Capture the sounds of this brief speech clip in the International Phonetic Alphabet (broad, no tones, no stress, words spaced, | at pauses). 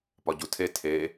pɒɟutʰe tʰe